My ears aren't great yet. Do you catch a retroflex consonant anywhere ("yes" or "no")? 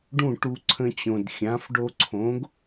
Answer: yes